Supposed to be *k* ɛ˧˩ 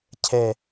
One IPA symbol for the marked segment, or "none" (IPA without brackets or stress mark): cʰ